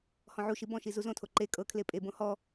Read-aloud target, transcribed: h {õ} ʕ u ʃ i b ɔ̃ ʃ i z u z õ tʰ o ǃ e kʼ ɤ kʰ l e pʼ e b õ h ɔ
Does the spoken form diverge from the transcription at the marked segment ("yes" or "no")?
yes